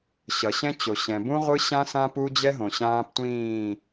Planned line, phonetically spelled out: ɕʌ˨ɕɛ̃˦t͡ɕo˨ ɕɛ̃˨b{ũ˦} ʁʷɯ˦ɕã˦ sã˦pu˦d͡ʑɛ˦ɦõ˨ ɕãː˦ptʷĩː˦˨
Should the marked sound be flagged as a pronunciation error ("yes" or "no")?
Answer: no